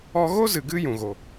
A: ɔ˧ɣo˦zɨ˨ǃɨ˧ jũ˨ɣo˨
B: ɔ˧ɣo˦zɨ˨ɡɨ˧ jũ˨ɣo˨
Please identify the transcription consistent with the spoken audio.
B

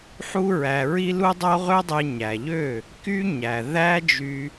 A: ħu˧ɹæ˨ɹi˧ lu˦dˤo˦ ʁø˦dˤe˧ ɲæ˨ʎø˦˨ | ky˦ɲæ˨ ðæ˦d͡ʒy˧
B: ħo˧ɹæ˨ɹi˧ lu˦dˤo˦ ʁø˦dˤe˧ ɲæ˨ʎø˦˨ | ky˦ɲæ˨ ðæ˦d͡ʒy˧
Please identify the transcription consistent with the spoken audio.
A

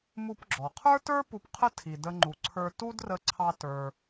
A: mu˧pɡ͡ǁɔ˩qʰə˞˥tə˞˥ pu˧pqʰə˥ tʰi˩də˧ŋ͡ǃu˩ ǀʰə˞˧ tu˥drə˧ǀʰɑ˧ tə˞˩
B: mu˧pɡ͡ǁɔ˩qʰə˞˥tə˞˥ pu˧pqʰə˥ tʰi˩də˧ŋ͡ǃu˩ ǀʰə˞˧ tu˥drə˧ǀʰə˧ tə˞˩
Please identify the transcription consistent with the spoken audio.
A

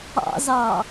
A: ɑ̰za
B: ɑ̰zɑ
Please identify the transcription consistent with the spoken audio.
B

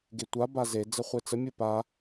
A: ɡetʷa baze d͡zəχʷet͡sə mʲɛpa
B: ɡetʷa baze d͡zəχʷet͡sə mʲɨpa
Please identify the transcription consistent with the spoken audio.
B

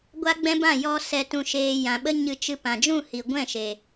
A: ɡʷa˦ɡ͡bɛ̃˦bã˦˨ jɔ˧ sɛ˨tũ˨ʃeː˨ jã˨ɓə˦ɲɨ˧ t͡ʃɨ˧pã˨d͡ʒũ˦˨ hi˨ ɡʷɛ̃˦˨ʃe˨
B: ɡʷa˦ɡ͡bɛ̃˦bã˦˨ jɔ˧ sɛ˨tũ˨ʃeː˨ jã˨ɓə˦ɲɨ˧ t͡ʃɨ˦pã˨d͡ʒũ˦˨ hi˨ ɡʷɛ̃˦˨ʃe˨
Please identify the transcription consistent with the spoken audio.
A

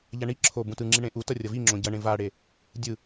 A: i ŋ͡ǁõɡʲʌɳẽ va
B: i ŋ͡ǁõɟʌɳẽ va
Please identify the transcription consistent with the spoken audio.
B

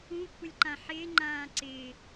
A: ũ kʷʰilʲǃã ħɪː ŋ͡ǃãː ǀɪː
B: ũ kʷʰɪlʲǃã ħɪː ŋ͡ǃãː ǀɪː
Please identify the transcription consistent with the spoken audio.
B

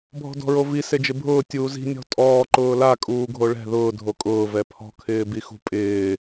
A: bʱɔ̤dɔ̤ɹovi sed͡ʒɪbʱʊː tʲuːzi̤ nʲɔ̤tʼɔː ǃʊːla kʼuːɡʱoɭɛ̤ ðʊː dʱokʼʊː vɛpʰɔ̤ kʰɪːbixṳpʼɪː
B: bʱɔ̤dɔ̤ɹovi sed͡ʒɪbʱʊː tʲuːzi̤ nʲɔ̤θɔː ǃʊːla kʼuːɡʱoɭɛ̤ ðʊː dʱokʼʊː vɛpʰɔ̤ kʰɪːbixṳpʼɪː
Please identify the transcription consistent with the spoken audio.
A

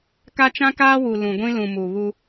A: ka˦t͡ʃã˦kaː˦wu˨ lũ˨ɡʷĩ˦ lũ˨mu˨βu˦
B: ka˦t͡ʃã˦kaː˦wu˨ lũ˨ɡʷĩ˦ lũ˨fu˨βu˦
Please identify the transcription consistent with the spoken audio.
A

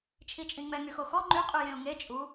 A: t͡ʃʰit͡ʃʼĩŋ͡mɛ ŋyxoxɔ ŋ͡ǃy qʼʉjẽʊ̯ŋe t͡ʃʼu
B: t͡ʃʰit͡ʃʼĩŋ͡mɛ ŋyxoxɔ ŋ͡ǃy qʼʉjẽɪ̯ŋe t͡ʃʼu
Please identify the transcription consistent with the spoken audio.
A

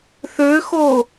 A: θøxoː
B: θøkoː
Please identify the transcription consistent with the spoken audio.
A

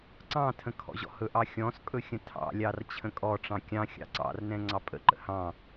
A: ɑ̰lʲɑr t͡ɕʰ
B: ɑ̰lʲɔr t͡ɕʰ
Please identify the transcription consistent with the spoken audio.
A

